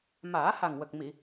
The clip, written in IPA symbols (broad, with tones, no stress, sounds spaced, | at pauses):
m aː˨˩˦ h a˨˩ ŋ w ə˨˩ k̚ m i˨˩˨